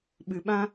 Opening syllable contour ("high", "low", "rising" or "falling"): low